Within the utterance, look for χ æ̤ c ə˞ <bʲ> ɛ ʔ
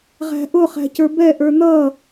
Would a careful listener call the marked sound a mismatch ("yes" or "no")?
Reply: yes